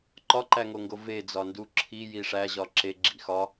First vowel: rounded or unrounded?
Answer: rounded